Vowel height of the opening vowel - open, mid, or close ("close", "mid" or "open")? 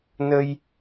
mid